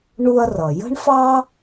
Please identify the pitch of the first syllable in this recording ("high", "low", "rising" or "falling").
high